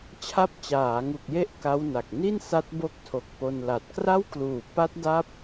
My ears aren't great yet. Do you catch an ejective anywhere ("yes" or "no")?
no